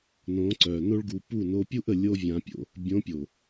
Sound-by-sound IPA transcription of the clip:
n õ˨˦ ǀ œː˨ n o˦ ɭ ɡ u˧ p u˦˨ n o˧ pʲ u˦ ʔ ə˨ lʲ o˦ vʲ ã˧ pʲ o̰˦ | bʲ õ˨˦ pʲ o˨

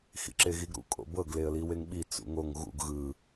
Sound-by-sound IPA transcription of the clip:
x ḭ ǁ e ɣ i ɡ ɾ ṵ kʼ o̰ b ɤ ɡ l e ə̯ l i w e ŋ ɓ i t͡s ṵ ŋ o ŋ ɣ ṵ ɡ ɣ ɯ

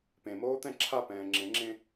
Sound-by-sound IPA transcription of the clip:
p ẽ m oː t̪ ɛ̃ ǁʰ a p ɛ̃ː ŋ͡ǁ ẽ ŋ͡ǁ ẽ

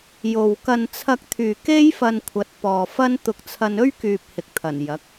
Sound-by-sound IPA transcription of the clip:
j o˨ w k ɐ˧ n t͡sʰ ɐ˧ k̚ t̪ʰ yː˨ k e˥ j f ɐ˧ n kʷʰ ɐ˨˥ t̚ p ɔː˨ f ɐ˥ n t̪ ʊ˧ k̚ t͡sʰ ɐ˧ n ɵ˥ ɥ k yː˨ p̚ h ɪ˨ k̚ t̪ʰ ɐ˨˩ n j ɐ˨˥ k̚

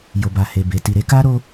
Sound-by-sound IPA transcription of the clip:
j o˨ b a˨ h e˨ b e˨ t i˨ ɾ e˧ k a˦ ɾ o˦

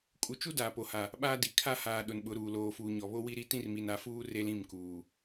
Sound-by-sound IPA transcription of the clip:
kʼ u˨ t͡ʃ u˦ d aː˨ p o˨ h a˨ | ɓ aː˦ d i˨ kʰ a˦ h aː˨ ɗ ʊ˨ n ɓ ʊ˨˦ ɾ uː˨ l oː˨ f uː˨ ɲ ɔ˨ β o˦ w i˦ ɾ i˦ t ĩ˦ r m i˨ n a˨˦ f uː˦ r e˦ l ĩ˦˨ m k uː˨

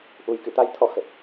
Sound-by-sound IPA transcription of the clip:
ʔ u˨˩ j k ɨ̰˧˨ t̪ a˨˦ j t̪ʰ ɔ̰˧˨ x ə˨˩ p̚

